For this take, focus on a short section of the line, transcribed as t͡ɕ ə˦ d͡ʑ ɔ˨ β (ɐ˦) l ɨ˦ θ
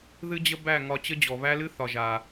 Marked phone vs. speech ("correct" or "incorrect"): incorrect